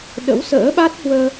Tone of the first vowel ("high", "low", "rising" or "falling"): rising